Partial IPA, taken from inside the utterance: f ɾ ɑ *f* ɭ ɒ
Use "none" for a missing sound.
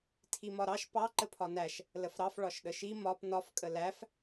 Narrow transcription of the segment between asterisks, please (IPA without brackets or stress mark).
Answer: f